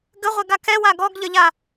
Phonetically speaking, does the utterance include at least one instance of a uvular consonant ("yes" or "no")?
yes